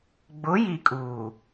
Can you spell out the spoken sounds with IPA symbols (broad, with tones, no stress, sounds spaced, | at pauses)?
ɡ͡b ʊ˨˦ j i˨ kʼ uː˨